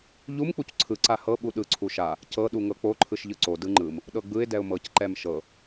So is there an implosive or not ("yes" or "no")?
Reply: yes